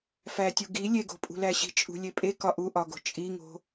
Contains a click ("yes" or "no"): no